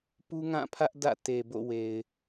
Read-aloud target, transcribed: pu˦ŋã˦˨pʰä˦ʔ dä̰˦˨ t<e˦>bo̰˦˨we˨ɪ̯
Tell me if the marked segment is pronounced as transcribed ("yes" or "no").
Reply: no